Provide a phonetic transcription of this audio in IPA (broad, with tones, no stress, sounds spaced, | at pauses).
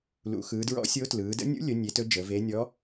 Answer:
l ṵ˩˧ x ɯː˩˧ d ɹ ɔ̰˧˥ sʲ o˧˥ t l ɯː˩˧ d ə̰˧˥ nʲ ṵ˧˥ lʲ ɵ˩˧ nʲ e˩˧ t ɵ˧˥ d͡ʒ əː˩˧ v e˧˥ nʲ ɔ˧˥